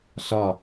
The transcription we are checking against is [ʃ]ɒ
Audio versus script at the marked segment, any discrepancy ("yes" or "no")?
yes